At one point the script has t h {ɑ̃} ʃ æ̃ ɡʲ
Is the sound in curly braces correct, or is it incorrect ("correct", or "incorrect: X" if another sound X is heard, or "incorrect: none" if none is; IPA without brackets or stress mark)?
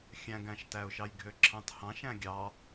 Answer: correct